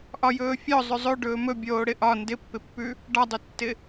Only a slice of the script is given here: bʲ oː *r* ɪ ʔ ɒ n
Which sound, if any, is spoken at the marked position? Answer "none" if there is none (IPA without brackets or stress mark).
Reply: ɽ